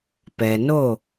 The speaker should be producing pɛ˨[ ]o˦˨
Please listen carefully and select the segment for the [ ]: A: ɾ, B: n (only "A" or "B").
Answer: B